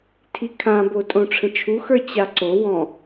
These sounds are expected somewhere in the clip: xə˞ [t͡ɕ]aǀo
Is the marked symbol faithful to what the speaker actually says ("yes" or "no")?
yes